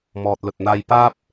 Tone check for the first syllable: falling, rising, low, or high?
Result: low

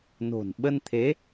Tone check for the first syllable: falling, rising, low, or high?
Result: low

